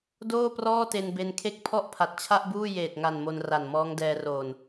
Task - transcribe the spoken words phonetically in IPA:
d oː˥˩ p r ɔː˥˩ t e˧ n b e˧ n kʰ e˥˩ k̚ pʰ ɔ˥˩ ʔ pʰ a˨˩ t̚ t͡ɕʰ a˥˩ ʔ b uː˥˩ j eː˨˩ t̚ ŋ a˨˩ n m o˧ n r a˨˩ n m ɔː˦˥ ŋ d ɛː˧ r oː˨˩ n

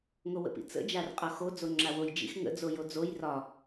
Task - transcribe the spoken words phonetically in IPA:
ŋ o w ə̰ p ḭ t͡s ə̰ d͡ʒ a r qʼ ɒ x o d͡z o ŋ͡ǁ a w o j d͡ʒ ḭ x ŋ ə̰ d͡z o j o d͡z o j r ɒ

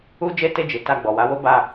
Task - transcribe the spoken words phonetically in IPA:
u˦ d͡ʒ e˦ t e˧ d͡ʒ i˨ t a˧ ɡ͡b ɔ˨ w a˨˦ w o˦ b a˦˨

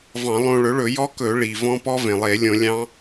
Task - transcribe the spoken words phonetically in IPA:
v ɑ̃˧˩˧ lˠ õ˧ ɭ ɵ˩˥ ɭ ɵ˧˩˧ j ɔ˦˥ k ɵ˧˩˧ ɭ i˩ v ɔ̃˦˥ p ɔ˦˥ v ẽ˩ lˠ e˧˩˧ lʲ õ˧˩˧ lʲ ɑ̃˦˥

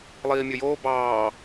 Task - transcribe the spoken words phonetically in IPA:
lˠ iː mʲ ɵ j oː b ɑː

